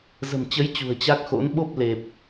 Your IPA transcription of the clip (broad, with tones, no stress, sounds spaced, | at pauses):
z ə̤˨˩ m t͡ɕ ə˨˦ j t͡ɕ ṳ˨˩ ə̯ t͡ɕ a˦˥ k̚ x o̰˧˥ n ɓ o˦˥ p̚ l e˨˩ p̚